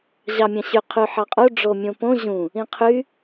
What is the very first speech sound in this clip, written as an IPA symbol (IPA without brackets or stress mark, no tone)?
ʑ